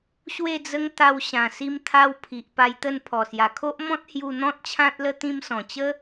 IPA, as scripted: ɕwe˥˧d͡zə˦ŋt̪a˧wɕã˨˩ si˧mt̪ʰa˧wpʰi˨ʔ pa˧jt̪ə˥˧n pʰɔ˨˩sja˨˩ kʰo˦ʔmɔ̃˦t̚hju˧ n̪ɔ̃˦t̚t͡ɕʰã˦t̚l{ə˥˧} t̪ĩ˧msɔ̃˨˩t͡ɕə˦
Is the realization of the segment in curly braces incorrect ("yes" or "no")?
yes